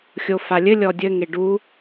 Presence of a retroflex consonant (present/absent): present